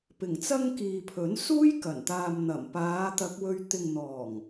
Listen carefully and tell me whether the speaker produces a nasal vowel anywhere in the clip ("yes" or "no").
no